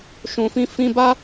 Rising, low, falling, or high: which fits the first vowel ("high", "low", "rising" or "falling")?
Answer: low